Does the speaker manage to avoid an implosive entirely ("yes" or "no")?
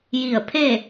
yes